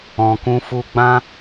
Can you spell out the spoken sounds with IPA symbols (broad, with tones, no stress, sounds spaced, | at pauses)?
ɔ̃˨ k ũ˧ f u˧ ɡ͡b ã˦